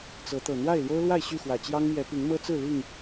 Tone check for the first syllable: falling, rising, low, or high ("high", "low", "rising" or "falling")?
rising